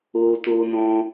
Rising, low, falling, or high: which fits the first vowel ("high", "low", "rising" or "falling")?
high